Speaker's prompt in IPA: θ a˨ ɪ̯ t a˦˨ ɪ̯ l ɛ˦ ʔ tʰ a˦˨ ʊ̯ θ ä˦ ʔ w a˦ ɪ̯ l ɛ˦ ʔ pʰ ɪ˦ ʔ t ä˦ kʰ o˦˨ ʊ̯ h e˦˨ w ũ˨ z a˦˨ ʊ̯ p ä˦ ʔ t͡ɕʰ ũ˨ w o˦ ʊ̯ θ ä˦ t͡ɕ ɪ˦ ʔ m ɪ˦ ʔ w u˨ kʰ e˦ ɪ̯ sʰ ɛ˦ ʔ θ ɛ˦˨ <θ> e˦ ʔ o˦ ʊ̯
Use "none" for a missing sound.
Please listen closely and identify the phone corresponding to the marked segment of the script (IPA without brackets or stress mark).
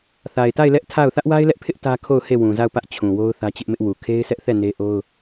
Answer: n